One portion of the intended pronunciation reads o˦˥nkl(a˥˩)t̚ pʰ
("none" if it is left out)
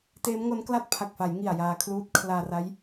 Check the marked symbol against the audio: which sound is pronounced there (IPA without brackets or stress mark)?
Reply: a˥˩